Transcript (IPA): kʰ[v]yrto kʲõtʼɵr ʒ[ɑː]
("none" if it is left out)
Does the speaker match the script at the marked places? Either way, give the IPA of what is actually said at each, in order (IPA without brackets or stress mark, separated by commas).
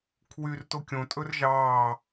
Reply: w, ɑː